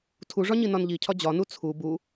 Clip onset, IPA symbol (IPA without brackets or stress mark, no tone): tʰ